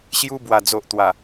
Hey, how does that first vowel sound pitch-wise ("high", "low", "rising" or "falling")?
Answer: high